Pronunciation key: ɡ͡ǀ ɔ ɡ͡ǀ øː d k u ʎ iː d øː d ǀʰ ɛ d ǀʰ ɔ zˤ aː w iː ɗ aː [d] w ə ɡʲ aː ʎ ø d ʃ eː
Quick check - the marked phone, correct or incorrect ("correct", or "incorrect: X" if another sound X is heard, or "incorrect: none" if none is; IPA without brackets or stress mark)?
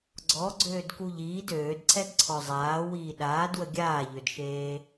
correct